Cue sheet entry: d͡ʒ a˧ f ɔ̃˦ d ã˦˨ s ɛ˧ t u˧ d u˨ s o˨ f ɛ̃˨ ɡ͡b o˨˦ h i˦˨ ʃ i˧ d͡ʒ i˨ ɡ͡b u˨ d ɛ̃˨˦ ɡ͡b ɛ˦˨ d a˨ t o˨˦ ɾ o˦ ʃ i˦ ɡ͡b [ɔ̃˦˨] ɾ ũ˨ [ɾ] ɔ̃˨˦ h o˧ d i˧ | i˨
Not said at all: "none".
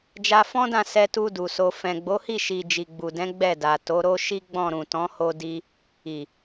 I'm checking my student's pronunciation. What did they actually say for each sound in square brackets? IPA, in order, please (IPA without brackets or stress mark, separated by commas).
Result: ɔ̃˦˨, t